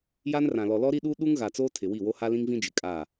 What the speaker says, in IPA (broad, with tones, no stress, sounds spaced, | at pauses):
j a˦ n r ã˨ l ɔ˨ l ɔ˦ ɾ i˦ ɗ u˦ ɗ u˦ ŋ ɣ a˨ t͡s oː˦ tʰ ɪ˨ w i˦˨ w o˦ h a˦ l ĩ˦ ŋ v ĩ˦ d͡ʒ ɪ˨ kʼ a˦˨